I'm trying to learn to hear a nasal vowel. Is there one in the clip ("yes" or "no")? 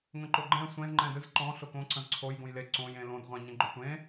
yes